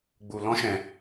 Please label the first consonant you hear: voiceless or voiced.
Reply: voiced